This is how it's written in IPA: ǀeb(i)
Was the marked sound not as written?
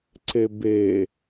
yes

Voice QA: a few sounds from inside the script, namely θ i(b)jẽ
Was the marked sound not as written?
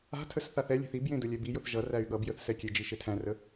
no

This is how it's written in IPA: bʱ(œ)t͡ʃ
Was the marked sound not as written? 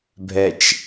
yes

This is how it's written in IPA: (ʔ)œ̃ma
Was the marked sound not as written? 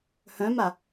yes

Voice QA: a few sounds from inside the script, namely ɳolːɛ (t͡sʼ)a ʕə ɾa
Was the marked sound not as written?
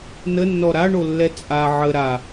no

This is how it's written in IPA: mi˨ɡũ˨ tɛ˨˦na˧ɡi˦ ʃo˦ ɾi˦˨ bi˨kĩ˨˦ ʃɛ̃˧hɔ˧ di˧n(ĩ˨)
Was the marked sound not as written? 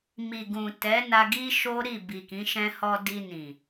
no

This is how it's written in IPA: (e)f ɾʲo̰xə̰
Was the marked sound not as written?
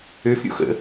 yes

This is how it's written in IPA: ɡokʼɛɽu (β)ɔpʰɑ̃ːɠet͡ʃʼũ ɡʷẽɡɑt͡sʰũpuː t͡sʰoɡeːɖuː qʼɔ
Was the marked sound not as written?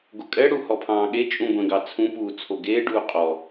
yes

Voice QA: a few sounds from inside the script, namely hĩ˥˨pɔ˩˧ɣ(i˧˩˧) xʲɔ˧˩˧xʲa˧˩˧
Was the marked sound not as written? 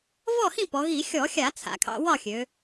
no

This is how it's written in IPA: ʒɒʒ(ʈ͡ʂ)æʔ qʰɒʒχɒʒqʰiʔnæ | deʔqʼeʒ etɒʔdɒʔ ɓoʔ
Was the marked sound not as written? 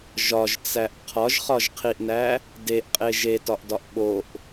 yes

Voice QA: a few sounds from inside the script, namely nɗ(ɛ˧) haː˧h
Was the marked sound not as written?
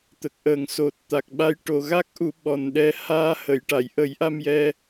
no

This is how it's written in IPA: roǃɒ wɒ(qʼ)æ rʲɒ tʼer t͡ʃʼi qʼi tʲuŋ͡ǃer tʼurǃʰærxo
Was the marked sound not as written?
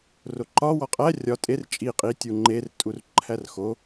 no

